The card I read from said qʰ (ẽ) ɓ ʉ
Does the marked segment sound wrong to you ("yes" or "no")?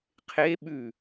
yes